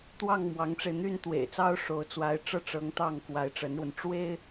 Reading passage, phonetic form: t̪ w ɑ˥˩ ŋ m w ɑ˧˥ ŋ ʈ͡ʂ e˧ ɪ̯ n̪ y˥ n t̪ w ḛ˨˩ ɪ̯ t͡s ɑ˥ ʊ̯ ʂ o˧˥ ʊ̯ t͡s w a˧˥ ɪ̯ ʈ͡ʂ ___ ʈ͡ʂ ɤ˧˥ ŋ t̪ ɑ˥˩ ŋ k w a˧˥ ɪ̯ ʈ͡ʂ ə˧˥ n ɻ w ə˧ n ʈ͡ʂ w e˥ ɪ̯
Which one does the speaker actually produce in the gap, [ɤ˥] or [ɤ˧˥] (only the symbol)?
ɤ˥